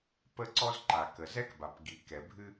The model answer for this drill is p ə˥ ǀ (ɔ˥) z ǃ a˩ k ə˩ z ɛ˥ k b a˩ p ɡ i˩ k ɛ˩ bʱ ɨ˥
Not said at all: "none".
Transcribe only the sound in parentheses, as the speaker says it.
ɔ˥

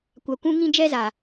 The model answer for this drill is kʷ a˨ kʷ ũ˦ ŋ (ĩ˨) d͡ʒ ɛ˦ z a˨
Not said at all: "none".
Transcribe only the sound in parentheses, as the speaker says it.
ĩ˦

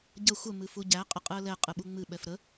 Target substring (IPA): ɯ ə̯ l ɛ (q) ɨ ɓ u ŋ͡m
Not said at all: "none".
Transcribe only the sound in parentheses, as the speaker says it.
qʼ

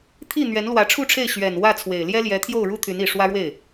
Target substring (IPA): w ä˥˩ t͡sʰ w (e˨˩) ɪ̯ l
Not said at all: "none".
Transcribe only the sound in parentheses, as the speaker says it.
e˨˩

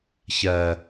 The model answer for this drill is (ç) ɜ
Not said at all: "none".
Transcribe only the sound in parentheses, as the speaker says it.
ç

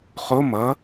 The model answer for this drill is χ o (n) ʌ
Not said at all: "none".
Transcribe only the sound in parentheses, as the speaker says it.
m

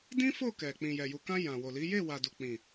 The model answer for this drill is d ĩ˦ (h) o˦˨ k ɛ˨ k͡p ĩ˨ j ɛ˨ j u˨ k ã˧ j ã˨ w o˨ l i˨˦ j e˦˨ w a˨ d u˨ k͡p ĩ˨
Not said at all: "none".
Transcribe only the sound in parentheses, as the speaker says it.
f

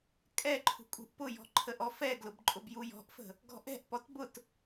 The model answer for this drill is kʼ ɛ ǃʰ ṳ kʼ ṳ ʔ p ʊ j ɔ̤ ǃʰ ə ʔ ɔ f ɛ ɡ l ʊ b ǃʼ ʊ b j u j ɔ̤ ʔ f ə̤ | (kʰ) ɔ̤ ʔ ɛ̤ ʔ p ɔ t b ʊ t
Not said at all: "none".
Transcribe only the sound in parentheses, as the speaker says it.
ɡ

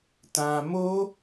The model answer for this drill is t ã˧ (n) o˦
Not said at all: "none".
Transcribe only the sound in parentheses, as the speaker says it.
m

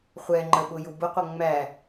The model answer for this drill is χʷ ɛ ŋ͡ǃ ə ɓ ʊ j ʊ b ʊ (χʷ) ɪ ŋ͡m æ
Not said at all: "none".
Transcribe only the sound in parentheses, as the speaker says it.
qʷ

